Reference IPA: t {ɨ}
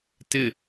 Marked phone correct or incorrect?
incorrect: ɪ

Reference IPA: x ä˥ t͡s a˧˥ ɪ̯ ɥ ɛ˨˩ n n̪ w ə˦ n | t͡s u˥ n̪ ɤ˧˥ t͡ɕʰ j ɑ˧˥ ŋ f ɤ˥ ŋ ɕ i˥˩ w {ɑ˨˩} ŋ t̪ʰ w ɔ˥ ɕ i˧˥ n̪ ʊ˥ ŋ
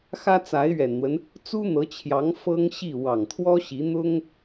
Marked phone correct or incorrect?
correct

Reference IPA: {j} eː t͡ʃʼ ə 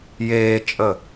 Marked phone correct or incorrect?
correct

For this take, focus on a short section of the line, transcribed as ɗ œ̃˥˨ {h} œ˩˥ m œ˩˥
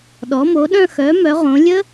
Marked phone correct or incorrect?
incorrect: x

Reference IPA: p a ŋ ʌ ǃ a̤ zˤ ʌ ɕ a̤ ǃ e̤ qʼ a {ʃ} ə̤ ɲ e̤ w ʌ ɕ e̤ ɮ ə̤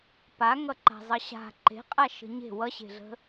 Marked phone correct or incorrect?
correct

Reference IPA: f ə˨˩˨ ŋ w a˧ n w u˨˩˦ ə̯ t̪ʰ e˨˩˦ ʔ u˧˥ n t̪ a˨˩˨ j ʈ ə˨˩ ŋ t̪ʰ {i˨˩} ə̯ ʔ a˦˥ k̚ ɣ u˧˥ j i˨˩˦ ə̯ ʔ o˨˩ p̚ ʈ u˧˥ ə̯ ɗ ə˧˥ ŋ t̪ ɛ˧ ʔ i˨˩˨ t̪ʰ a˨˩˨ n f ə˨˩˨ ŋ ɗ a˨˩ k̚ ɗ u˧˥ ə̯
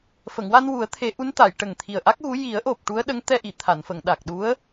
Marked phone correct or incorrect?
correct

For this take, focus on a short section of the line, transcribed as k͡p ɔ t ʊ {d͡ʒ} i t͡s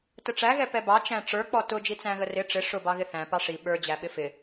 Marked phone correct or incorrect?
correct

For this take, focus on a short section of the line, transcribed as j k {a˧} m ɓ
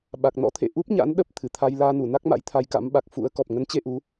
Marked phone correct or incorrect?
incorrect: a̰˧˥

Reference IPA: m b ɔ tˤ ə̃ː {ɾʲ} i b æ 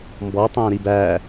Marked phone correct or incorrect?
incorrect: ɾ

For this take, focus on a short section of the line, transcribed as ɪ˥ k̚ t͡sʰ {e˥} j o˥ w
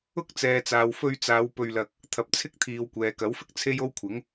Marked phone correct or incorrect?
correct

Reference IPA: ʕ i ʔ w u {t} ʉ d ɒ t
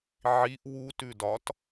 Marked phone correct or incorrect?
correct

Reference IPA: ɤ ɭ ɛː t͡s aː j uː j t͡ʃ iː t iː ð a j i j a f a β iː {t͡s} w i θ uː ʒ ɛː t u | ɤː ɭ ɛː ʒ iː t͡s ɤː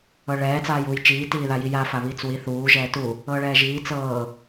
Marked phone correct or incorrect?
correct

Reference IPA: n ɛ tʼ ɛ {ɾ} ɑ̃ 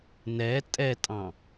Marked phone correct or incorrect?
incorrect: tʼ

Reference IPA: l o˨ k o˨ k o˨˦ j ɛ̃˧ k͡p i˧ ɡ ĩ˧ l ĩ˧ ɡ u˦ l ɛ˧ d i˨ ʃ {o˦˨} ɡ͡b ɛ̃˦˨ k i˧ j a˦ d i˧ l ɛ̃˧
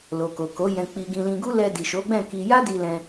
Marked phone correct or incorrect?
incorrect: o˨˦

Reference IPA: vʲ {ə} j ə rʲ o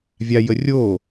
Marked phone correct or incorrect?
incorrect: a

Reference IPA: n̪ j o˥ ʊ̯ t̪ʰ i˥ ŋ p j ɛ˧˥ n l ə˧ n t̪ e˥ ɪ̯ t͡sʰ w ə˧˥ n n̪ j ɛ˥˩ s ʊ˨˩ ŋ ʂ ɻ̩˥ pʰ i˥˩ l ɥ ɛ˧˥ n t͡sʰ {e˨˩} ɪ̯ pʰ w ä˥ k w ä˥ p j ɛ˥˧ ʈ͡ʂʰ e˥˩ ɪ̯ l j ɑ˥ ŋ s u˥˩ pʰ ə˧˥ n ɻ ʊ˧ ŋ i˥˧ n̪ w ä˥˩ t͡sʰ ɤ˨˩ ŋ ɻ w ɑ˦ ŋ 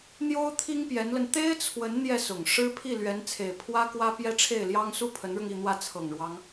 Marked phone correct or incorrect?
correct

